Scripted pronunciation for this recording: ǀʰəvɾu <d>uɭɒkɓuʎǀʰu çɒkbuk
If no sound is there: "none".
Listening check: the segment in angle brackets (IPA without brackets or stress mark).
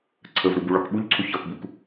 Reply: b